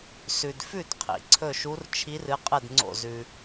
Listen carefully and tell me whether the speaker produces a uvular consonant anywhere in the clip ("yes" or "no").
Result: yes